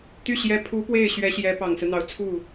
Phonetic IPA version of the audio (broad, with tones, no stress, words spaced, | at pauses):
t̪y˥˩ ɕjɛ˧˥ pʰu˧˥ pwe˥˩ɪ̯ɕɥɛ˧˥ ɕjɛ˧˥ pɑ˨˩ŋsɹ̩˦n̪ɑ˧˥ʊ̯t͡sʰu˥˩